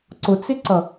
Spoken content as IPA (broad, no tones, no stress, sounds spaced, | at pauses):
ǀ ʊ t͡s ɪ ǀ ʌ